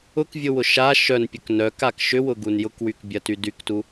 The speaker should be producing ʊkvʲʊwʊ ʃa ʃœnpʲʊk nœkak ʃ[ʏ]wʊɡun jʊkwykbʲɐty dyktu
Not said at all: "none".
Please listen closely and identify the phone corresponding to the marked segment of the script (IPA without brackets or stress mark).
ʏ